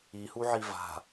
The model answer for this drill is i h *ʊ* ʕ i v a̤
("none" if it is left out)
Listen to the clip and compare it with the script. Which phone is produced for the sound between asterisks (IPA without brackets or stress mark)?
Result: u